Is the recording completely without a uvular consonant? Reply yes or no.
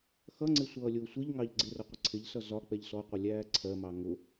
no